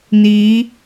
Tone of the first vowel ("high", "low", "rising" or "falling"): rising